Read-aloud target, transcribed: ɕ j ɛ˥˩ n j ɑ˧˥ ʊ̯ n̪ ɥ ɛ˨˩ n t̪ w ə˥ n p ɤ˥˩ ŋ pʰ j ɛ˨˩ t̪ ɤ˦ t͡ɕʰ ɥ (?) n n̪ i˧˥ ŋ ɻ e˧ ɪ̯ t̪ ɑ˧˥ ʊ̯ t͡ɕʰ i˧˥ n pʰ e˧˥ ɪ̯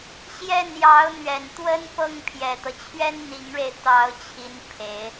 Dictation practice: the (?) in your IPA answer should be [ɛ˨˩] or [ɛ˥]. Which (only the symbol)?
ɛ˥